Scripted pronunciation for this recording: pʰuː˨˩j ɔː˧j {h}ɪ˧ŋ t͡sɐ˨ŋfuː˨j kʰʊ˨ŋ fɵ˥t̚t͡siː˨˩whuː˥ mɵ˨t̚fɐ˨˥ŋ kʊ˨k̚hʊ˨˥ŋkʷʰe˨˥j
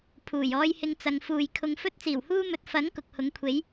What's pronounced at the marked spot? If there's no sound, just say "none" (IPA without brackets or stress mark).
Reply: h